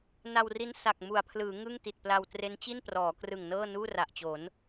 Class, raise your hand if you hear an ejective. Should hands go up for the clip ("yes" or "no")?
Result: no